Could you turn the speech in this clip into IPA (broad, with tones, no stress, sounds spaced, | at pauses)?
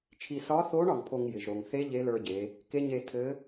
t͡ʃʰ i˧ s ɒ˧˥ θ o˧˥ ɳ ɒ˩˧ ŋ pʰ o˧ ŋ j ɪ˩ ʒ ɾ o˩ ŋ θ e˧˥ ʎ e˧˥ l ə˞˧ ɟ e˩˧ | k e˧˥ ɲ e˧ tʰ ɘ˧˥